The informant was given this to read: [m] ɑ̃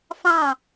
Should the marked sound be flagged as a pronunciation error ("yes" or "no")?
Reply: yes